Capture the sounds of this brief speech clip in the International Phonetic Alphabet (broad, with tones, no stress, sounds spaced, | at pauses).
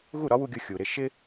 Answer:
ɣ u˥˩ ɾ ɒ˥ w u˧ ɡʲ ʊ˧ xʲ u˩ ɾ ɪ˥˩ ʃ ɪ˥